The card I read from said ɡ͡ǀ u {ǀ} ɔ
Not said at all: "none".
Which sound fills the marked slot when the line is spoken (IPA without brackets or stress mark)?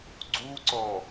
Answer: ǀ